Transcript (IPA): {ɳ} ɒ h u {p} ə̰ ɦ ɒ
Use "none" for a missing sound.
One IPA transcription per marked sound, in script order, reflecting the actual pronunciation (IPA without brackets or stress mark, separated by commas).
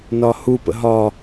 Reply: n, p